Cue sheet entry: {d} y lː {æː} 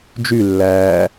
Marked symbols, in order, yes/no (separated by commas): no, yes